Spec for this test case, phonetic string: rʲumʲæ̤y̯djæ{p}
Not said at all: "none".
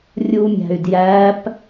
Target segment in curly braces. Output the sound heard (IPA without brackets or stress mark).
p